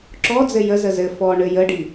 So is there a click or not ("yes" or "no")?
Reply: yes